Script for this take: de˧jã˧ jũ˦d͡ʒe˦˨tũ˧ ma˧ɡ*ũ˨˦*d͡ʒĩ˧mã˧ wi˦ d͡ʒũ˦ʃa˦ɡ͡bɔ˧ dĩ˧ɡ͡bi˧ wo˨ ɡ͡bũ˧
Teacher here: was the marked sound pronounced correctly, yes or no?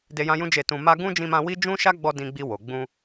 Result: no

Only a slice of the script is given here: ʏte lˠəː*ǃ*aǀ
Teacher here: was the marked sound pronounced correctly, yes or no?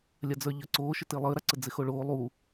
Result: no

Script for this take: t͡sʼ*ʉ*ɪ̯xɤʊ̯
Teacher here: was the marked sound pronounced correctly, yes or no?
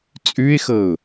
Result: yes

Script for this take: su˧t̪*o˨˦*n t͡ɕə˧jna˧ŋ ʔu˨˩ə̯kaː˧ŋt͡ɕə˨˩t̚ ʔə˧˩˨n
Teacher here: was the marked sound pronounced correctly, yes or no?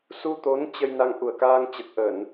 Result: yes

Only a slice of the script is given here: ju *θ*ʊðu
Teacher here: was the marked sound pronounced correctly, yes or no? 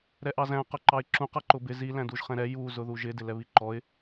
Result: no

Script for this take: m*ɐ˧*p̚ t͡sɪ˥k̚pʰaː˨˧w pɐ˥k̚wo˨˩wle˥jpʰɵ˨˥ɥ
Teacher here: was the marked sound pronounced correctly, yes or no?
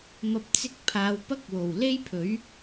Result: yes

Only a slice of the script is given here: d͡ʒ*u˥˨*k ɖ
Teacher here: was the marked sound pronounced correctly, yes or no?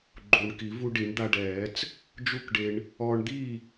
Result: yes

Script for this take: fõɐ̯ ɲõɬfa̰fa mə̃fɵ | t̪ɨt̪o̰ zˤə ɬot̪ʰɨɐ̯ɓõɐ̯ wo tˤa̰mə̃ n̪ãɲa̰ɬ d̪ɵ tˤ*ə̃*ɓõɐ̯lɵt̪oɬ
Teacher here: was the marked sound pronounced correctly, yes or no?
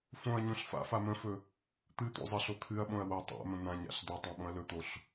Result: no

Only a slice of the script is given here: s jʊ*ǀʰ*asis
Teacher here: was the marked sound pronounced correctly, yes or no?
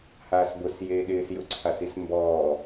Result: yes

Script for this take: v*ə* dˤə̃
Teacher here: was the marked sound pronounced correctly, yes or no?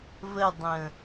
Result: yes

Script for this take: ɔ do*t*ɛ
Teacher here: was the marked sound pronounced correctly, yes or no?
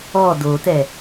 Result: yes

